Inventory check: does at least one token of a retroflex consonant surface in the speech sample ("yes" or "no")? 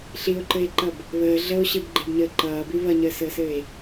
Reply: no